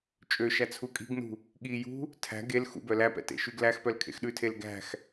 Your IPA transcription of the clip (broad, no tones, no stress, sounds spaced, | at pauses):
t͡ʃʼ ø ʃ æ t͡sʰ u kʼ i̤ ɡ n ṳ | ɠ i j ṳ | tʰ æ̤ ɡ e l x ṵ b œ l æ p ɛ̰ t ḛ ʃ y ɡ l æ x p œ l kʰ ḛ x ɗ ʉ tʰ e l ɡ æ̤ x